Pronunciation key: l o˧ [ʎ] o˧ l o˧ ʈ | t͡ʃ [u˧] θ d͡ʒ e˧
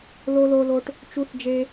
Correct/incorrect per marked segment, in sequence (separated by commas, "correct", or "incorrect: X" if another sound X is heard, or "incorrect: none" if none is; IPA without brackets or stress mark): incorrect: l, correct